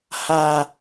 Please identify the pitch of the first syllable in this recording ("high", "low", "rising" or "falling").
low